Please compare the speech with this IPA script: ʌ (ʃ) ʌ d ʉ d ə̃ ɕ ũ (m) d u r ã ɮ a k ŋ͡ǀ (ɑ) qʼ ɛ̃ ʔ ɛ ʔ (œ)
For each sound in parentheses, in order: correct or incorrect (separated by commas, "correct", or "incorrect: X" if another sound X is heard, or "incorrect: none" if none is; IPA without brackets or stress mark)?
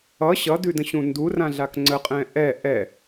incorrect: ɕ, incorrect: n, incorrect: ə, incorrect: ɛ